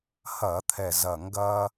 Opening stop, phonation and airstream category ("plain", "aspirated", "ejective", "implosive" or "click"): aspirated